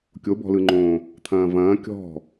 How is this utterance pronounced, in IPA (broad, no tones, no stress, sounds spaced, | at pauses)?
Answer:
kʲ o b ɔ̤ l ɯ ŋ͡ǃ õː | t̪ʰ ɐ̃ː v ɐ̃ː kʲ ɔ̤